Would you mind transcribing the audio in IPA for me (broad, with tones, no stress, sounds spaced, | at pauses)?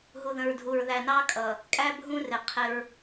ɦ u˨ ð ə̃˨ ɹ dʱ u˨ ɹ ð æ˨ n ɑ˦ kʼ ʌ˨ | kʼ æ˦ bʱ ũ˦ r ɪ˨ qʰ ɪ˦ ɹ